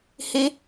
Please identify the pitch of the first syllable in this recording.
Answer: high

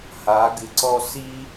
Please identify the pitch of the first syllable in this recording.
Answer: rising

